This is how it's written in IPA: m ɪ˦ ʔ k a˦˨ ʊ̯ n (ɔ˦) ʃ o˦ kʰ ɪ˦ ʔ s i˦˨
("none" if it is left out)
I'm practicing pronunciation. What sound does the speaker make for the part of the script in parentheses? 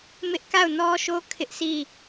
ɔ˦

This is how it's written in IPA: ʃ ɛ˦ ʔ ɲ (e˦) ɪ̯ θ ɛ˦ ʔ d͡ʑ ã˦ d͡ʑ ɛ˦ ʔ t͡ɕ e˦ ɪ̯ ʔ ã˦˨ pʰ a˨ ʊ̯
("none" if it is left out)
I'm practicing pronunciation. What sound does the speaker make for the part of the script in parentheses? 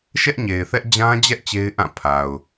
e˨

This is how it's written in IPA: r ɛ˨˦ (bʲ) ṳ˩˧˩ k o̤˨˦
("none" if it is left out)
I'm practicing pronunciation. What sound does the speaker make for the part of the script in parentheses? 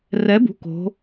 b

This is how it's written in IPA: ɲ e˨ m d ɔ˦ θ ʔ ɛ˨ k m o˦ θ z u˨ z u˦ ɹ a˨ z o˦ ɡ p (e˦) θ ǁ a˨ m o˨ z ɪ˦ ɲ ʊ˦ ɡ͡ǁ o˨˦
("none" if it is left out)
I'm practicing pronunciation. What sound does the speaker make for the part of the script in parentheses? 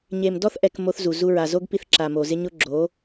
i˦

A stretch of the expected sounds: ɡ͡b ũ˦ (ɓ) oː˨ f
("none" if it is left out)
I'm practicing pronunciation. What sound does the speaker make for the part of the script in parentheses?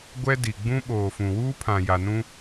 ɓ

